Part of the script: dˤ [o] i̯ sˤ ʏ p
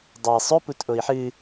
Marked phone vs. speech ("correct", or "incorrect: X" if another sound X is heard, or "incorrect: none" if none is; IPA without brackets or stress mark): correct